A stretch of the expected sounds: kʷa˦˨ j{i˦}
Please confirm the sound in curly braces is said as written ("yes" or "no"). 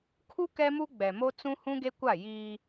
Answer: no